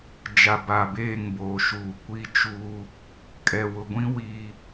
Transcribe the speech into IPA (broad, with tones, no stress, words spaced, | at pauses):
d͡ʒa˨ba˨beː˦˨ŋboː˨ ʃuː˨kʷi˦t͡ʃuː˦ | kʼɛ˨wʊ˨ɡʷĩ˦ wiː˦